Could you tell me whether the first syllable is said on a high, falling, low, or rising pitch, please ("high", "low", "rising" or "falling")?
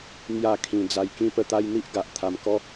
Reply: falling